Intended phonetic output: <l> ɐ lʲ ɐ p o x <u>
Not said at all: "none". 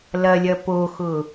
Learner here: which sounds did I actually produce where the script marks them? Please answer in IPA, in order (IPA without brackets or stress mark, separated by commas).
l, ʊ